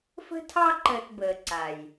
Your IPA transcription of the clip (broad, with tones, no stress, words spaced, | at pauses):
fə̤˦tʰɑ˦ ǃəː˧tbəː˨ǀa˨j